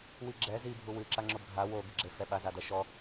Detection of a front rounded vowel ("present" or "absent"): absent